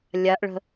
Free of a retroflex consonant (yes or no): no